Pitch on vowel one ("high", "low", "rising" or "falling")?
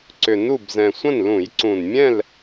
low